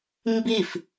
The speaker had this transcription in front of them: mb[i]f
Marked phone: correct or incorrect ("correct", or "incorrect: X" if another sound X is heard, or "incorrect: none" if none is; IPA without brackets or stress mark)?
correct